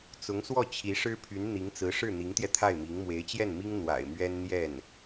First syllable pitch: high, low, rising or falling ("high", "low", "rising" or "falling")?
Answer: rising